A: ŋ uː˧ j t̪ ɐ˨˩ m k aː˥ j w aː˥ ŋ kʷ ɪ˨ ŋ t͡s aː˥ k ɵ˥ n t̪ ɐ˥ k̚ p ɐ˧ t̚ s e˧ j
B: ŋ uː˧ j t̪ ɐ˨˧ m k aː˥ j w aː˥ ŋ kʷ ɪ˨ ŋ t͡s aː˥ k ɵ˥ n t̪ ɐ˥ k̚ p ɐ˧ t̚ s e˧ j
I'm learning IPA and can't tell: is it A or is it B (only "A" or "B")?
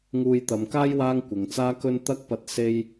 B